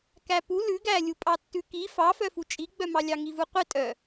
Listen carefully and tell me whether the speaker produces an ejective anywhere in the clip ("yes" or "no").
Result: yes